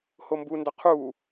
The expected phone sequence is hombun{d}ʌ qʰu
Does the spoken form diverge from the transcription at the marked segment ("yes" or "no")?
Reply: no